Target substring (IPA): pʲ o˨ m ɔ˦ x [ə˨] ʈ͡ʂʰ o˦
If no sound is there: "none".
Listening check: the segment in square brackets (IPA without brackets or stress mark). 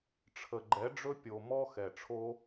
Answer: ɛ˨